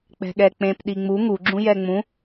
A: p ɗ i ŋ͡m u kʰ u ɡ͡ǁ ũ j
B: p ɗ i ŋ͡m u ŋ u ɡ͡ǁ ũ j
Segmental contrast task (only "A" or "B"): B